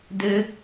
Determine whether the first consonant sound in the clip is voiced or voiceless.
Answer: voiced